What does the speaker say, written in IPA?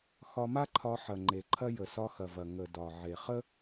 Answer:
x ɒ˧ m a˦ ǃʰ ɒ˧ ħ ɐ˨ ŋ͡ǃ e˨ ǃʰ ɐ˦ j ə˨ s ɒ˧ x ɐ˨ v ɐ˨ ŋ ə˨ d ɒ˨ ʕ e˨ χ ə˦

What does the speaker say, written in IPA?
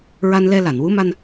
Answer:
ɹ a˧ n l ɛ˧ l a˨˩˨ n w u˧˥ m a˧ n

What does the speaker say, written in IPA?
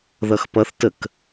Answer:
ð ʌ x p ʌ θ t ə k

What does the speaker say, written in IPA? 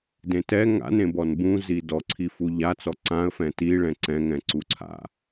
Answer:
d ẽ t ɛ ŋ a̰ n ẽ b ɔ n b ũ z i d ɔ ǀʰ i f u ʎ a t͡s ɔ ǀ ã ə̯ f ɛ̃ t i ɭ ɛ̃ ǀ ɛ̃ ŋ ɛ̃ ǀ u ǀʰ a̰

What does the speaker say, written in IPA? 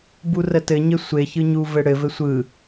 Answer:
b u r ə t ɘ ɲ ɘ sʷ e ç ɯ ɲ u v ɘ ɽ ɘ v ɘ sʷ ɯ

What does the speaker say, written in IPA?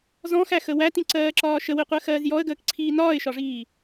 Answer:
z ɔ̃ x æ x ə w æ t ĩ ǀ ɜː ǁ ɒː ʃ ə w i qʷ ɜ x ɜː z j ɔ ə̯ ɡ əː k ǀʰ iː n ɒː ɪ̯ ʃ ɒ ʐ iː

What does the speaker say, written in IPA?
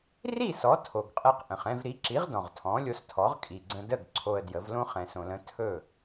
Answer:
r i˥˩ s ɔ˩˥ tʰ o˩ ɡ qʼ ɛ˧ q ʔ ə̃˩ χ ɛ̃˥˩ v ɾ i˩˥ ǁ i˩˥ ʁ d ɔ̃˩ ʁ tʰ ɔ̃˩˥ lʲ o˧ s tʰ ɔ˩˥ ʁ kʼ i˩ ɡ͡ǀ ə̃˧ d ə˥˩ ɡ ǀʰ o˧ ə̯ d j ə˩˥ v l õ˥ χ ɛ̃˩ s õ˩ l ə̃˩˥ tʰ ɵ˥˩

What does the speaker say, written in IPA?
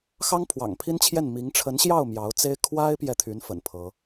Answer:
x ɑ˥ ŋ pʰ w ɑ̰˨˩ ŋ pʰ i˥ n t͡ɕʰ j ɛ˥˩ n m i˧˥ ŋ ʈ͡ʂʰ ə˧˥ n ɕ j ɑ˥˩ ʊ̯ m j ɑ˧˥ ʊ̯ t͡s e˥ ɪ̯ kʰ w a˥ ɪ̯ p j ɛ˨ t̪ʰ y˧˥ n f ə̰˨˩ n pʰ ɤ˧˥

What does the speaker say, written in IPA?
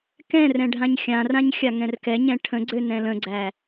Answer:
k ɛ̃ r ɛ̃ ɖʱ ã ɲ xʲ ã r ã ɲ xʲ a ŋ ɛ̃ r k ɛ ɲ ɛ̃ ʈʰ ə̃ ɡ͡ǀ ø n ɛ̃ l ə̃ ɡ͡ǀ æ

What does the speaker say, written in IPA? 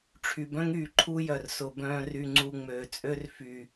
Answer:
ʈ͡ʂʰ y˨ b œ̃˦ ŋ yː˨ ǃʰ u˦ j œ˨ r s ʊ˨ b œ̃ː˧ r y˨ ŋ͡ǀ u˨ ŋ͡m øː˨ t͡sʼ ø˦ r f y˨

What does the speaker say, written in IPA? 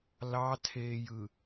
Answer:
l ɑ tʰ eː j ɯ

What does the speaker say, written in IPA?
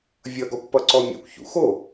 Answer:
vʲ ʌ ɡ ɔ kʷ p ʌ ǀ ɔ mʲ a̰ kʷ ç ṵ x o

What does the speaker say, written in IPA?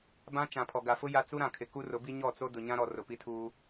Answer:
b ã˦ t͡ʃ ã˨ pʰ ɔ˨ ɡ a˨ f ʊ˦ j a˦ t͡s u˦ ɾ ã˨ kʰ ɪ˨ k u˦ r ʊ˨˦ b i˦ ɲ ɔ˦˨ t͡s o˦ d ʊ˨ ɲ ã˦ ɾ ɔ˨ r ʊ˨ p i˦ tʰ uː˦

